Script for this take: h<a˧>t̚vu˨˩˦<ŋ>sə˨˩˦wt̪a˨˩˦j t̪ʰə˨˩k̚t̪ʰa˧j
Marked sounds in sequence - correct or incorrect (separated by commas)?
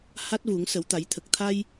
incorrect, correct